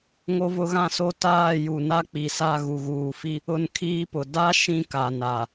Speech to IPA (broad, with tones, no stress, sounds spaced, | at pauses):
ŋ o˦ v ʊ˦ ɣ ã˦ s o˦ t aː˦˨ j u˨ n a˦ k͡p i˨ s a˦˨ ɣ u˨ ɣ uː˨ f i˦ | ʊ˦ n kʰ iː˦ p ʊ˨ d a˦ ʃ ĩ˦ k a˨ n a˨